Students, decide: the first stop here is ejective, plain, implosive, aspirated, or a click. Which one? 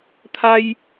aspirated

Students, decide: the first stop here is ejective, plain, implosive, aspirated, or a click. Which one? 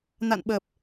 implosive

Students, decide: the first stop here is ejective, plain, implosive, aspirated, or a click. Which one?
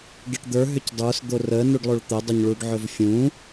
plain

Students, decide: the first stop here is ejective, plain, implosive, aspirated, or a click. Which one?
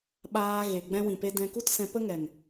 implosive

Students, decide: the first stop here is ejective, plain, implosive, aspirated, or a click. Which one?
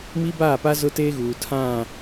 plain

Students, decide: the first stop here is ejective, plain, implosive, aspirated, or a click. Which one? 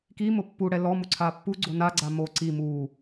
plain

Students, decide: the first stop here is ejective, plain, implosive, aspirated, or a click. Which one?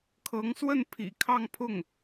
aspirated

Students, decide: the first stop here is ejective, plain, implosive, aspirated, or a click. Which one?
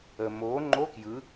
click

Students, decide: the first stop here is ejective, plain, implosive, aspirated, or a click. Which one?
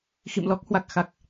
plain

